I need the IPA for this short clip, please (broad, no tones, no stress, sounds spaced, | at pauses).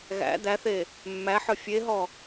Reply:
ɣ æ̰ d̪ æ θ e | mː æ ħ œ fʲ e ɦ ɔ